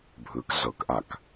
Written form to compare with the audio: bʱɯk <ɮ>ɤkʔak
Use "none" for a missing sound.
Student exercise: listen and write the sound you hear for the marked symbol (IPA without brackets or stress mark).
ɮ